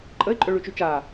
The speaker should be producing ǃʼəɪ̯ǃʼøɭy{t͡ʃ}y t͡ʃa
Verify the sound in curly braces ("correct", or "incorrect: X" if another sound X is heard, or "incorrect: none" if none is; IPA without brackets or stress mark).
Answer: correct